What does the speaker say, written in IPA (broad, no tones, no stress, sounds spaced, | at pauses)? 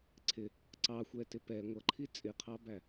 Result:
ǀʰ ɪ | ǀ ɑ xʷ ɛ t ɪ p ɛ ŋʷ ʌ ǃʰ i t͡sʼ ɪ qʰ ɑ b æ